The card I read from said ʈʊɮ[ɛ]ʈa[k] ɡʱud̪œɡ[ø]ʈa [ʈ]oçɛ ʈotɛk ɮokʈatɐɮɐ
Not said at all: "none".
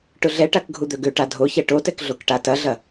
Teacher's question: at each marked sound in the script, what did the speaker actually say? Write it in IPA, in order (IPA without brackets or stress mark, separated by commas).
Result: ɛ, k, ø, dʱ